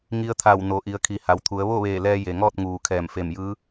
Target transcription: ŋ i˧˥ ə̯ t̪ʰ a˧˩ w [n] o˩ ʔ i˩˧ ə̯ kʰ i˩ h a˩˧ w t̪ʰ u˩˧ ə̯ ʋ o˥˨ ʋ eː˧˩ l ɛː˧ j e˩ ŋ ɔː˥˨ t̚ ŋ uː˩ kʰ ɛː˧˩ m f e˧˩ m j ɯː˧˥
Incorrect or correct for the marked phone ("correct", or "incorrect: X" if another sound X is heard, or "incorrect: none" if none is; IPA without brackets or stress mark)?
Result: correct